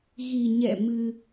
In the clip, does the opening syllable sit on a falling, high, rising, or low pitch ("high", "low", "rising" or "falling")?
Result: low